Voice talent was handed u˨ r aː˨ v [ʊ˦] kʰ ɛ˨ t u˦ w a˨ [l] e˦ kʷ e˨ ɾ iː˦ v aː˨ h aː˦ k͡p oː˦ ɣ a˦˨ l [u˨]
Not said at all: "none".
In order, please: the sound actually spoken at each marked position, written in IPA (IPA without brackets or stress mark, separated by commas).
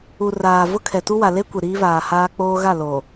ʊ˦, l, o˨